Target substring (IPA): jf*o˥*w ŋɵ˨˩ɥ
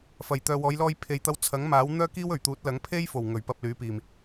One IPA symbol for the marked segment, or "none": o˨˩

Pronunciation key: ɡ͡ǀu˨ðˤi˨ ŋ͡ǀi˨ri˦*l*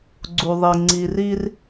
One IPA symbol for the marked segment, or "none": r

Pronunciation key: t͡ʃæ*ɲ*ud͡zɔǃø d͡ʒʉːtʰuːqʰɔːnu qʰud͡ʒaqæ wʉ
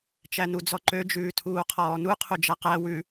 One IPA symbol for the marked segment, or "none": n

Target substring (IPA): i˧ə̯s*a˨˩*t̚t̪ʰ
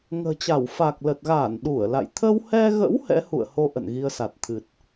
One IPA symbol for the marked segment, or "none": a˨˩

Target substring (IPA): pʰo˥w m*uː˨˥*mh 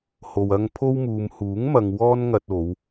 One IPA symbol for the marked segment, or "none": uː˨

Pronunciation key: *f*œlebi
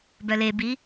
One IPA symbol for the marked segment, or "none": b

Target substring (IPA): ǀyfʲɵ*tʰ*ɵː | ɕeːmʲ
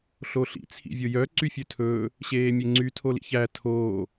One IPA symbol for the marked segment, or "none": tʰ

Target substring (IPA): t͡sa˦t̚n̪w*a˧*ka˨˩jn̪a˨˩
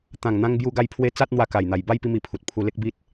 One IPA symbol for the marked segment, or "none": a˧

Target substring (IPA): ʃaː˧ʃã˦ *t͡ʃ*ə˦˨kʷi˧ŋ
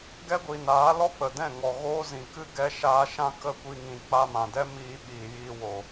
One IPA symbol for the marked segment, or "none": k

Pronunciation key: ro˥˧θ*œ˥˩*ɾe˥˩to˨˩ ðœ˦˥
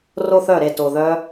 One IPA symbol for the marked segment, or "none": œ˥˩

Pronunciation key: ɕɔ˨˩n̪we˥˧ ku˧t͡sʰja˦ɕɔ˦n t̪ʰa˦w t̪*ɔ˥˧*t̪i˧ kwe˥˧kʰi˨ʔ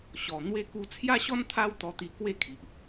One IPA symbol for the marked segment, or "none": ɔ˧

